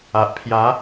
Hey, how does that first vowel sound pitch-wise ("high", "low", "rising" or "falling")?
low